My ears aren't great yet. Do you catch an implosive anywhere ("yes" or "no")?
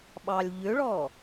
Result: yes